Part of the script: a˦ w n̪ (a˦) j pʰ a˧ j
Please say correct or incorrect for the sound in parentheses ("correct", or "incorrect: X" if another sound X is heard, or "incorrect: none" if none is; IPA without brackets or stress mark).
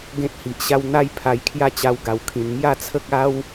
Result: correct